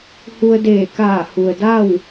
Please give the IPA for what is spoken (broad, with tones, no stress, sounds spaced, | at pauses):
h u˧ ə̯ d eː˧˩ k aː˧˩ h u˩ ə̯ d a˥˨ w